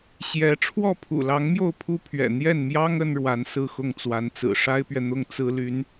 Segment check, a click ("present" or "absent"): absent